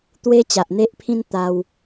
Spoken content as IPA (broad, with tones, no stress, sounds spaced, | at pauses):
t̪ w e˧ t͡ɕ a˨ ʔ n̪ e˦ ʔ pʰ ĩ˦ n t̪ a˧ w